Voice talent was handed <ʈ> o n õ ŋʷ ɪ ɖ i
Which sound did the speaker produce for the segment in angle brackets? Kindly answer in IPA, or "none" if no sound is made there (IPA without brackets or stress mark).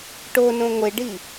ʈ